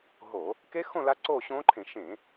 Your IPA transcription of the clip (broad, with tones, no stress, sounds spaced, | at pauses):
ɦ oː˧˩˧ | k e˦˥ x õ˥˧ l a˦˥ ǀ oː˥˧ ɕ õː˦˥ ǃʰ ẽ˧˩˧ ʃ ẽː˧˩˧